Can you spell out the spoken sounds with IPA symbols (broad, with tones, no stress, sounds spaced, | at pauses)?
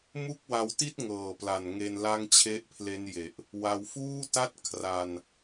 m u˥˩ k̚ w a˧ w t i˥˩ t̚ ŋ ɤː˨˩ p l a˨˩ n ŋ e˧ n l a˥˩ ŋ t͡ɕʰ e˥˩ ʔ pʰ l e˦˥ n j e˨˩ ʔ | w a˧ w f uː˥˩ t a˥˩ t̚ kʰ r a˧ n